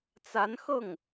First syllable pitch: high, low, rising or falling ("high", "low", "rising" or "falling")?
rising